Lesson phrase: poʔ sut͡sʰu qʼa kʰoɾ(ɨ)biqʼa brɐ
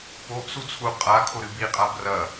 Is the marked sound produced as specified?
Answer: yes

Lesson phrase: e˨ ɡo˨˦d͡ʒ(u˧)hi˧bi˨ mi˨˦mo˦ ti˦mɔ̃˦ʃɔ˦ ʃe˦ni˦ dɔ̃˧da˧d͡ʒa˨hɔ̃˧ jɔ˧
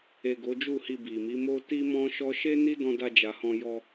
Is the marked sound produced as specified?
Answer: no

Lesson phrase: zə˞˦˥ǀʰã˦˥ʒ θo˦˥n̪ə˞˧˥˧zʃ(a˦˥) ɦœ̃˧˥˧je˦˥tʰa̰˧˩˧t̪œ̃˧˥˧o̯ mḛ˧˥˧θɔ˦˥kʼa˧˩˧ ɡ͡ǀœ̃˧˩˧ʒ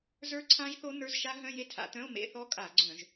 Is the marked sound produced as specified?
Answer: yes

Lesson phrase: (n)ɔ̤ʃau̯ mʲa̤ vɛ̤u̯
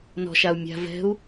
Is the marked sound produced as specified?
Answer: yes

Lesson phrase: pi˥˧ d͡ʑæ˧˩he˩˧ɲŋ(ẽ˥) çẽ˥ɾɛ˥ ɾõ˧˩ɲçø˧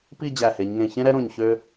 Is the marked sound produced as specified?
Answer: no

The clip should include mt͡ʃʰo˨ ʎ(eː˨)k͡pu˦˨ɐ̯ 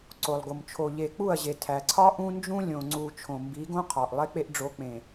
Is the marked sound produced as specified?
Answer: no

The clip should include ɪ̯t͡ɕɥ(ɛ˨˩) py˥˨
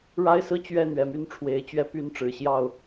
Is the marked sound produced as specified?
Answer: no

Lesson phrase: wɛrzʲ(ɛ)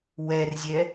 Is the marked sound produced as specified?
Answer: yes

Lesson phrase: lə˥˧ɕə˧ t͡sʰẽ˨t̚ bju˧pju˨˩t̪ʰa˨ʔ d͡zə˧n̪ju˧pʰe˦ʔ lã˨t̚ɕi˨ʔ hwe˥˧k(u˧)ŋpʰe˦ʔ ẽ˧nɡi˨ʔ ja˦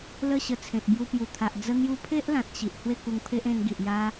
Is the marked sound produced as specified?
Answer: yes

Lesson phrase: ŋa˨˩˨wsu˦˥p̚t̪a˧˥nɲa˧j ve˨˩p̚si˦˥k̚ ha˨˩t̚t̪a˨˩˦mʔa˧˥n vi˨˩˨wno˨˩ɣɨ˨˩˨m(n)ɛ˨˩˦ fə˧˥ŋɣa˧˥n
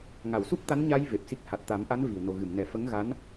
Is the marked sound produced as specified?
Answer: yes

